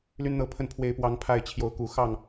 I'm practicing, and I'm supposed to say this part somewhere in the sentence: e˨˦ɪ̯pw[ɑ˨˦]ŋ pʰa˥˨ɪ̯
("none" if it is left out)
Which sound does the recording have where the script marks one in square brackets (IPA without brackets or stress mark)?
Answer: ɑ˨˦